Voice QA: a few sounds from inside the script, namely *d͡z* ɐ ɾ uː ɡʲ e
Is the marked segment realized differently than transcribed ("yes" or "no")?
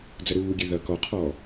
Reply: no